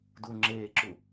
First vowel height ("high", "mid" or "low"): high